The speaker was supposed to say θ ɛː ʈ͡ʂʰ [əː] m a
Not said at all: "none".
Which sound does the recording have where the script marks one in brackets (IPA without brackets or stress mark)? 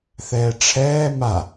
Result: ɛː